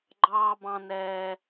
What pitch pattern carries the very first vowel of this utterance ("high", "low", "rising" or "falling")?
high